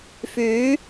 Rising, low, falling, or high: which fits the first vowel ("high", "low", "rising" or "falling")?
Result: rising